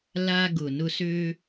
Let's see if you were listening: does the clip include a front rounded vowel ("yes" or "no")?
yes